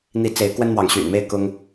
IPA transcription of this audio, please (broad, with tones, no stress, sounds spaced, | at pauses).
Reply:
n̪ i˨˦ t͡s e˨˦ ɪ̯ k w ə˦ n m w ɑ˨ ŋ ɕ y̰˨˩ n m e˦ ɪ̯ k ʊ˦ ŋ